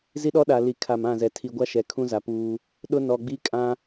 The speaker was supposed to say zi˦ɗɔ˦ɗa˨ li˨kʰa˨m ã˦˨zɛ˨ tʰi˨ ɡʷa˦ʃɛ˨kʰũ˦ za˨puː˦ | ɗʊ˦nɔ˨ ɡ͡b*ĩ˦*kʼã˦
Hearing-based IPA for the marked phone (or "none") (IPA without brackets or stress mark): i˦